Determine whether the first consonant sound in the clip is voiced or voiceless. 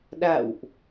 voiced